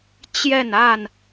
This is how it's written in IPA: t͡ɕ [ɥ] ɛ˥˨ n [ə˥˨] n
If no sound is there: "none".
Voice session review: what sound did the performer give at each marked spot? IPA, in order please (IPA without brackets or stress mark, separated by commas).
j, a˥˨